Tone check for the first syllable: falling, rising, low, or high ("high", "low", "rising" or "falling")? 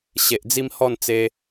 low